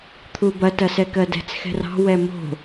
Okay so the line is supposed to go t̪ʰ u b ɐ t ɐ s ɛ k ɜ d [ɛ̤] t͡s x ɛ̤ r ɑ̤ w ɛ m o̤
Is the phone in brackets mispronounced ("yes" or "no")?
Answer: no